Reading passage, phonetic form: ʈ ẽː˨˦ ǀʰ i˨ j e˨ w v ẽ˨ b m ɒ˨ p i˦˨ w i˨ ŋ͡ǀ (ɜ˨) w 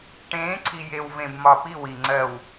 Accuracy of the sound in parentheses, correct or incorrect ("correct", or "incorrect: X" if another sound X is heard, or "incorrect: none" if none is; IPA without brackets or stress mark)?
correct